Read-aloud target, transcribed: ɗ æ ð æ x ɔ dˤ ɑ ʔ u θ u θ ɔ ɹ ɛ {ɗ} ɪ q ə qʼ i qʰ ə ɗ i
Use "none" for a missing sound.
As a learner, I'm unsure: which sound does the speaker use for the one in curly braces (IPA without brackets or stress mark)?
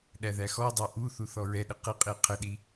ɗ